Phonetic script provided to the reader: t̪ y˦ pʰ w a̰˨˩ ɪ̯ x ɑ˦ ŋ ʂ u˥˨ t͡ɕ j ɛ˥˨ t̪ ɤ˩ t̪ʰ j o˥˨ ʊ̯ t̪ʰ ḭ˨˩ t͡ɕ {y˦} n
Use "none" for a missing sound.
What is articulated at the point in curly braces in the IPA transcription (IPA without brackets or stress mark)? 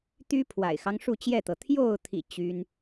y˦